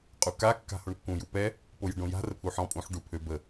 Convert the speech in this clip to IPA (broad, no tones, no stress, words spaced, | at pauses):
qʼuka kːa̤hoɳkːũ jupɛ | pojə̤ɖõja̤ rəpʰuħɔ̃ pʼũħ ɖupʰøb ə